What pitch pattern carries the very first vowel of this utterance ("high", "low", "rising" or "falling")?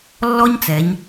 high